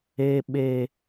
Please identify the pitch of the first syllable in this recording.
high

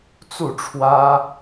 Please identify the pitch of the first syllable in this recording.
falling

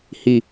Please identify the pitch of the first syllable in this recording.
low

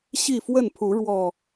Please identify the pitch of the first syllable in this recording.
falling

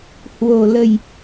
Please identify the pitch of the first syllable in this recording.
low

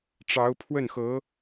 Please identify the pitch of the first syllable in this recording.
rising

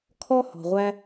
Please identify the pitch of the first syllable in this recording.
high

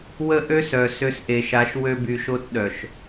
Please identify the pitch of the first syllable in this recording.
high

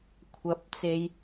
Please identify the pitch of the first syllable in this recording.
rising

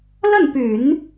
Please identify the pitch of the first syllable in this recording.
falling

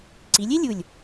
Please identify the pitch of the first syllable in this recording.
rising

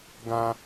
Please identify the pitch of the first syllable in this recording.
low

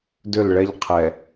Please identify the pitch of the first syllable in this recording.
falling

